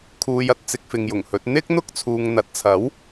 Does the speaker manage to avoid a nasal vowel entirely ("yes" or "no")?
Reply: yes